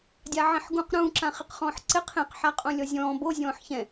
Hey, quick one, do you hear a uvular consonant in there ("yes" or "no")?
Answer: yes